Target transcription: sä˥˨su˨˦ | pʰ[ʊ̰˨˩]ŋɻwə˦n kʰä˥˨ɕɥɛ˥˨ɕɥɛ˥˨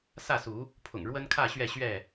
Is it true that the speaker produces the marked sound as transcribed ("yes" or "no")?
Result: yes